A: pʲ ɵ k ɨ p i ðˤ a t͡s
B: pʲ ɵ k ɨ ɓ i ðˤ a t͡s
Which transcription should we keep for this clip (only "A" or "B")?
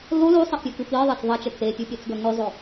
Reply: A